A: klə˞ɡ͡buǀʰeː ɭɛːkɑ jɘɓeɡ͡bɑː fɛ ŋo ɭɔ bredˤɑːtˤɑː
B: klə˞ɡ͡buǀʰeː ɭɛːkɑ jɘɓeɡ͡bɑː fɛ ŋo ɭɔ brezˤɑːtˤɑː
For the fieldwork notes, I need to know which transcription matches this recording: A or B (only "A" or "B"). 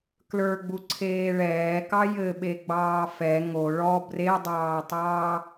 A